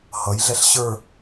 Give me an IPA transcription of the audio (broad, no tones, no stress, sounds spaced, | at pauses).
h ʌ j ɮ ɛ ɬ ɕ ə˞